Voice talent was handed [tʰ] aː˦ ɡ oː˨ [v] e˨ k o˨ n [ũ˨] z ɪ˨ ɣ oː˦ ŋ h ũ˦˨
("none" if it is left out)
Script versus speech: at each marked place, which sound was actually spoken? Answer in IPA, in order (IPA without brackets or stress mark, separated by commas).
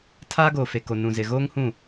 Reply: tʰ, f, ũ˨